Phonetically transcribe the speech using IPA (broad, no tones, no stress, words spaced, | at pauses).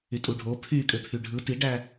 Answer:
ytʼuɖʱo pʰykʼøpʰy ɖʱɯ tiɖæ